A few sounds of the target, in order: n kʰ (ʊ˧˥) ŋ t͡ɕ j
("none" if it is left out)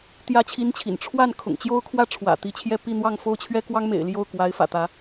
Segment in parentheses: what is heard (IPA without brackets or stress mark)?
ʊ̰˨˩